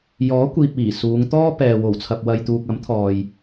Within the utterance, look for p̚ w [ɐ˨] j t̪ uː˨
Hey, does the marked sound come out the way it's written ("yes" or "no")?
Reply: yes